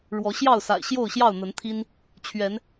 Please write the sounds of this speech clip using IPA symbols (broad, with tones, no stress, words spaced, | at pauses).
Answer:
ɻwɔ˨˦ɕjɑ˥˨ʊ̯sa̰˨˩ɪ̯ ɕjo˥˨ʊ̯ɕjɑ˥˨ʊ̯n̪ə˨˦nt̪ʰi˦n | t͡ɕʰɥɛ˨˦n